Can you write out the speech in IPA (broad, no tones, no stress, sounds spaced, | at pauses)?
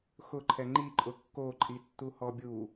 x ʊ ǃʰ ɛ ŋ͡ǃ i ǃʼ ʊ kː o ǃʼ i tː u h ɔ bʲ u